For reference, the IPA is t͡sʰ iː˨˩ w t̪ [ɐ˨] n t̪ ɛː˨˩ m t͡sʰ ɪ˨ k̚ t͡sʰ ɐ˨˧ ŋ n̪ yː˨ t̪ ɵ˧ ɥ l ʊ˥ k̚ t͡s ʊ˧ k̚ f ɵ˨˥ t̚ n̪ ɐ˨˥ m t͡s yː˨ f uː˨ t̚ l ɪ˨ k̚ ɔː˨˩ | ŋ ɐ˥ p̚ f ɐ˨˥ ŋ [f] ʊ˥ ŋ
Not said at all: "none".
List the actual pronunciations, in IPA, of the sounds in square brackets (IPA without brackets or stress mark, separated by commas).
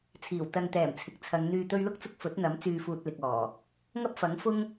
ɐ˨, f